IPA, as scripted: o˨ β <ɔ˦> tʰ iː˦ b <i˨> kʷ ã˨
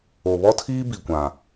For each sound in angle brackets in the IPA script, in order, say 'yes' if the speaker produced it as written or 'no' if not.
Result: yes, yes

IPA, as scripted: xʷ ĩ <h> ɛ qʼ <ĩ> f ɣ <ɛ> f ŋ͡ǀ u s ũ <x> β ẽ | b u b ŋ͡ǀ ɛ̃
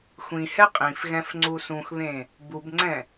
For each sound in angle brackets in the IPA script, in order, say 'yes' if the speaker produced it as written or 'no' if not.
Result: yes, yes, no, yes

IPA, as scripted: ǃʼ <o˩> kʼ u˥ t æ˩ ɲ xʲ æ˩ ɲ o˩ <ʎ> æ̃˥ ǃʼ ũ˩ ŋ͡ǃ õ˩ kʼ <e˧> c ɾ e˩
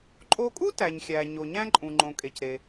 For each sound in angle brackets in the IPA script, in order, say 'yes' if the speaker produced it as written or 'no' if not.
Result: no, no, no

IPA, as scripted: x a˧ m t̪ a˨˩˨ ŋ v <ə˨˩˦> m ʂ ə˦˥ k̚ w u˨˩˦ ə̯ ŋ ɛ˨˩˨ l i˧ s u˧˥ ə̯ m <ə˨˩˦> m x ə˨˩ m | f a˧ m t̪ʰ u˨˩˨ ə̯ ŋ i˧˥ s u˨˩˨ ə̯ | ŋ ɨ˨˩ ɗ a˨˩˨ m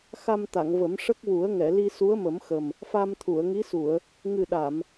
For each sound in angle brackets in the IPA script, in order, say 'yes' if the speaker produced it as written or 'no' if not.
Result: yes, yes

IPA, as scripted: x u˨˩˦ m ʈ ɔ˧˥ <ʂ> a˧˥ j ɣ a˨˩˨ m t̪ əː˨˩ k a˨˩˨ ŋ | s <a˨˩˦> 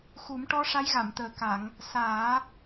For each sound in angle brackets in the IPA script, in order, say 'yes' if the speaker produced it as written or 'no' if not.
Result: yes, no

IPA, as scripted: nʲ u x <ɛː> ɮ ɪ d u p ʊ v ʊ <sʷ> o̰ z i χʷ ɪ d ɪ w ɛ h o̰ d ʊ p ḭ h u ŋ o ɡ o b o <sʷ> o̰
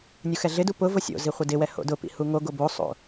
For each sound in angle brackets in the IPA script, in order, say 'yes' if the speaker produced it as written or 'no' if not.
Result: no, no, no

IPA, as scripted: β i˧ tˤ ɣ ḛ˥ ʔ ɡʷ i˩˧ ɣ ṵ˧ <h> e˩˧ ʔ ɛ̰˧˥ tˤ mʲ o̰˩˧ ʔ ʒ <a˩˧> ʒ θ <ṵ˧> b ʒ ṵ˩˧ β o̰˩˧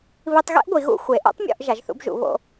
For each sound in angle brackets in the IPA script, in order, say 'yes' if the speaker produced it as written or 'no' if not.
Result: no, yes, yes

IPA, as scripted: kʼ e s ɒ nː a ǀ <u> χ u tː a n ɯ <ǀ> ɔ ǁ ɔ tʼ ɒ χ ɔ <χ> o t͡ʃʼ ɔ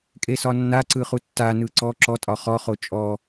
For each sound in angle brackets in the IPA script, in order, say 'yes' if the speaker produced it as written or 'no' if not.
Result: no, yes, yes

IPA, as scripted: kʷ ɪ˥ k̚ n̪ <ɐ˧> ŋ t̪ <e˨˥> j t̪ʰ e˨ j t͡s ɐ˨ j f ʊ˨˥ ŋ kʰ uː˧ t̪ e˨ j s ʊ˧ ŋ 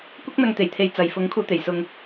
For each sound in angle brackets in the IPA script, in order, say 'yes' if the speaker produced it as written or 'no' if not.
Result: yes, no

